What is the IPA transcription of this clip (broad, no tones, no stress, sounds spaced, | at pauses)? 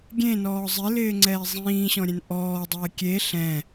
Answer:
ɡʲ ẽ n ɔː zˤ ɪ l ɪː ŋ͡ǀ ɛː zˤ ĩː ɕ ɔ̃ ɾʲ ɛ̃ n ʔ ɔː dˤ ɛː kʲ e ɬ ɛ̃